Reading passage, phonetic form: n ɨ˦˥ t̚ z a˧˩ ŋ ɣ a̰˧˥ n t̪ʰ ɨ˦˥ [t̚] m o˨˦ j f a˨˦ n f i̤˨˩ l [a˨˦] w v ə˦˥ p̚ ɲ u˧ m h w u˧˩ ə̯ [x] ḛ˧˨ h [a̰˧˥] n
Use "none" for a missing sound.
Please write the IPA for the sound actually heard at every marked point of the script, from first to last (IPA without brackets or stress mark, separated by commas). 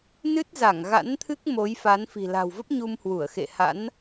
k̚, a̤˨˩, x, a̰˧˥